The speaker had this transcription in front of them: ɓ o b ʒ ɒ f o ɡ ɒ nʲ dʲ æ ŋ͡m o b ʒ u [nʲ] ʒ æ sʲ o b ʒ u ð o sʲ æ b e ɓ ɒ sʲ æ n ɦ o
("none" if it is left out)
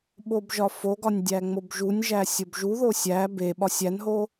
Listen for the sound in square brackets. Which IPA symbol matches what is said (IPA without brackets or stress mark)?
nʲ